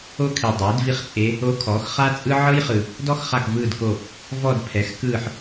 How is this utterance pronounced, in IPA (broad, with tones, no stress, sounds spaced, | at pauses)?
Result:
o˥ kʰ i˨ dˤ eː˩˥ d v i˥ χ t͡sʼ e˧˥ | o˧˥ kʰ ɔː˩˥ x χ a˥ t͡sʼ ɯ˥ ʕ ɤ˥ j χ ɯ˨ | d ɔ˥ x χ a˦˨ k v ɯː˦˨ d k o˦˨ | v ɔ˦˨ d pʰ ɛ˩˥ x k ɯː˦˨ ħ